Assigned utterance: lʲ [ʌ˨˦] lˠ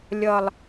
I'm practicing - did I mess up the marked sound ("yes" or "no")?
yes